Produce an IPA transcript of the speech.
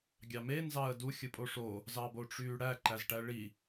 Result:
ɡʲ ɑ m e n z ɑ ə̯ d u xʲ ɯ pʼ o ʂ o | z ɑ b o ʈ͡ʂ yː ɽ æ ǃ æ z ʈ æ ɭ i

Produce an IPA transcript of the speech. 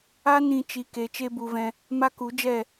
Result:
a˦ n ĩ˧ t͡ʃ i˨˦ k e˨˦ t͡ʃ e˦ b u˧ v ɛ̃˧ | m a˦ k u˨˦ d͡ʒ ɛ˦˨

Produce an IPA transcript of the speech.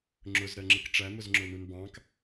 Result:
ŋ͡ǁ ʊ z ɾ ɜ ŋ͡ǁ ɪ k ʈ͡ʂ æ m ʊ z ŋ͡ǁ ʊ n u n b ɑ̃ k

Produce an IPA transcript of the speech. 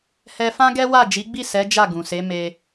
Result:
h ɛ˧ f ã˦ ɡ ɛ˦ w a˦˨ d͡ʒ i˨˦ ɡ͡b i˦˨ s ɛ˨˦ d͡ʒ a˦˨ ɡ ũ˨ s e˨˦ m e˧

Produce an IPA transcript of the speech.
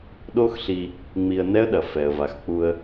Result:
ɗ o˦ x ɬ i˧ | ŋ͡m i˧ ə̯ n ɛ˦ ə̯ ɗ ɐ˨ f ɛ˨ ə̯ v a˨ x k͡p u˧ ə̯

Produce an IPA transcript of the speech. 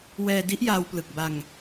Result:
w ɛː˧ d i˦˥ ʔ j aː˧ w p l ɯ˨˩ k̚ b a˧ ŋ

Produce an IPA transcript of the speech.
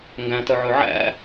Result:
ŋ ɡ æ̃ t œ ʕ ɵ ʕ æ̰

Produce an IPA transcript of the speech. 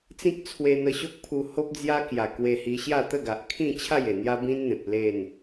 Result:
t͡s ĩ˦ k̚ t͡sʰ w e˧ n̪ ə˧ ɕ o˦ k̚ pʰ u˧ h o˦ p̚ d͡z j a˦ k j a˨˩ k w e˧ h i˧ ɕ j a˥˧ t̪ ə˥˧ ɡ a˨ ʔ kʰ ĩ˥˧ t͡ɕʰ a˥˧ j e˨˩ n̪ j a˦ b ĩ˦ n n̪ ẽ˨ p̚ l e˥˧ n

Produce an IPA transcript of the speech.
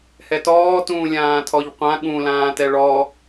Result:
h ɛ t ɔː t ũː lʲ ãː tʰ ɔ ʎ qʷ ã ɠ ũ l ãː t ɛ ɭ ɔ

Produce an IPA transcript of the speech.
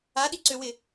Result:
a ɗ i ǀ ø w ɪ

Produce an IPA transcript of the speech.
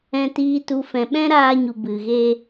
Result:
ɛ̃˨ t iː˨ t u˨ f ɛ̃˨ ɓ ɛ̃˦ ɾ aː˧ ɲ u˨ b ɨ˨ ɣ e˧

